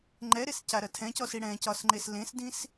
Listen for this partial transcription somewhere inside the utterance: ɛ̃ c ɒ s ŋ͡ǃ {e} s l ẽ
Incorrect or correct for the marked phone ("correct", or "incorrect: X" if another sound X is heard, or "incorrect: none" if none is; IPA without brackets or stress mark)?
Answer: correct